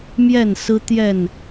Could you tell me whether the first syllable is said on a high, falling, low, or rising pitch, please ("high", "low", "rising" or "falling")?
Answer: falling